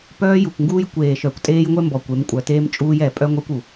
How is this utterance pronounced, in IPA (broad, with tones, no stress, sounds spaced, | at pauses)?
p œː˦ j u˨ kʷ ŋ ɡ uː˦ j kʷ eː˨ ʃ œ˨ kʷ tʼ eː˦ j ŋʷ ɛ˦ m b ɔ˨ kʷ e˨˦ m kʷʼ œ˨ t eː˦ m t͡ʃʼ uː˦ j ɛ˨ pʼ œ˦ ŋʷ ɛ˦ kʷ u˨